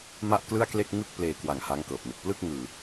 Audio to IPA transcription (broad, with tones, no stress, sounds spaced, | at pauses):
m a˥˩ ʔ k l ɯ˥˩ a̯ k l e˥˩ k̚ ŋ ɯ˥˩ k̚ p l eː˧ k w a˨˩ ŋ h a˦˥ ŋ k ɤː˨˩ p̚ n ɯ˨˩ k̚ p l ɯ˥˩ k̚ ŋ ɯː˧